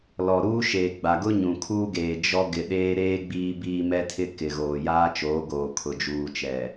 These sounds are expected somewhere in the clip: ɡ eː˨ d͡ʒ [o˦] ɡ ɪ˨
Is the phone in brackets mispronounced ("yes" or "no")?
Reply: yes